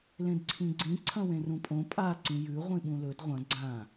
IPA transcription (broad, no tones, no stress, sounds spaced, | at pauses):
l ẽ d ǀʰ ĩ ɡ͡ǀ ĩ ǀʰ ɐ̃ w ẽ r ũ pʼ õ pʼ a ǀ ĩ j ʉ ʁʷ ĩ ɓ ũ l ɵ d ʁʷ ɐ̃ ɡ͡ǀ ã